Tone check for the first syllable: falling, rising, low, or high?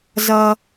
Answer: high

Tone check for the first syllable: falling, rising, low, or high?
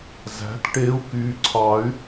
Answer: rising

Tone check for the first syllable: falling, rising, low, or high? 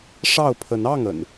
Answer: falling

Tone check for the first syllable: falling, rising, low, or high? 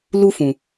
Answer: high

